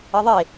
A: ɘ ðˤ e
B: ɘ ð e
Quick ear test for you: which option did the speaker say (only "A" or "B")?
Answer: A